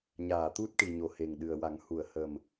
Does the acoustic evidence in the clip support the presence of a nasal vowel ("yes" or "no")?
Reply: no